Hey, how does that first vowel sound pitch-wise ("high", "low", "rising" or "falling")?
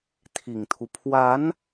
low